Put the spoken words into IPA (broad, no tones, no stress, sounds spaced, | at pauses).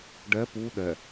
ɖ ɛ p u ɗ ɛ